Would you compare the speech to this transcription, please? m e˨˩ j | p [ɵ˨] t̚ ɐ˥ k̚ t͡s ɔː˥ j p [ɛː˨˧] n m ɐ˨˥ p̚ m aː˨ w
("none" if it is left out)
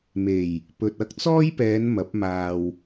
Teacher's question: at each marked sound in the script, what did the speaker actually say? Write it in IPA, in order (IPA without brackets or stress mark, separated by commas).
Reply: ɵ˨, ɛː˨˧